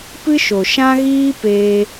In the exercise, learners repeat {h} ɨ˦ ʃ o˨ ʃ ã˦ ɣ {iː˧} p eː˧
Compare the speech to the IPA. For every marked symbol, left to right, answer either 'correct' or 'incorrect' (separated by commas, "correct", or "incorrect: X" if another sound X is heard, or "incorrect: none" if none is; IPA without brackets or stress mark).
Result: incorrect: p, incorrect: iː˦